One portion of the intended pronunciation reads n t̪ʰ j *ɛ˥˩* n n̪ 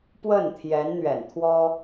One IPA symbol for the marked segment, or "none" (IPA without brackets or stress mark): ɛ˧˥